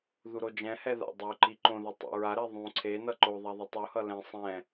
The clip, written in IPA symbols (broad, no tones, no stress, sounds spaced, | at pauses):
ð u ɾ o d͡ʒ ɛ̃ h ɛ ð a̰ dˤ u ǃ i ǃ õ ð ʌ tˤ ɛ̰ ɹ a ɾ ɛ ðˤ ũ ǀʰ e n ʌ ǃ o ðˤ a ðˤ u tˤ u h ʌ l ɛ̃ sˤ ɛ̃